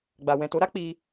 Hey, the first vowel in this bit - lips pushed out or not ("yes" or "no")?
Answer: no